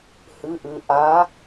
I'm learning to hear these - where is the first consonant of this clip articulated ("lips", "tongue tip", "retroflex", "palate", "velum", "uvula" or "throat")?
throat